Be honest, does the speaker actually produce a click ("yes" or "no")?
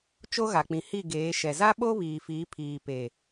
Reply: no